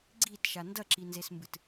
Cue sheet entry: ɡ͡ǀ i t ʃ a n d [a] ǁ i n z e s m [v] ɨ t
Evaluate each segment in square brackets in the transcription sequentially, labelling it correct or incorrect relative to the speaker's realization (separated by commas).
incorrect, incorrect